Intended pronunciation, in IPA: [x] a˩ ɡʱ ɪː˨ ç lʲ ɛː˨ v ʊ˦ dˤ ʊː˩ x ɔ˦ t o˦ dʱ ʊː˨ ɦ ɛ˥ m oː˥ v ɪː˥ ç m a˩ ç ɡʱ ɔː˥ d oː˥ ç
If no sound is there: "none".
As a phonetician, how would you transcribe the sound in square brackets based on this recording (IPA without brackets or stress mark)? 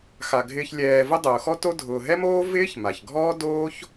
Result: x